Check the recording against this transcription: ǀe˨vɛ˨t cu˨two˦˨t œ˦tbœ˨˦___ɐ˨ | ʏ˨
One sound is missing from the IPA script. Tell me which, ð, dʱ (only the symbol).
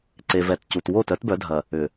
dʱ